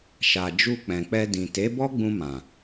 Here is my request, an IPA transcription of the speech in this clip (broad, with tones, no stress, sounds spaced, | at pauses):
ʃ a˨ d͡ʒ u˧ k͡p ɛ̃˨ k͡p ɛ˧ d ĩ˨ t e˨˦ b ɔ˦ ɡ͡b ũ˧ m ã˨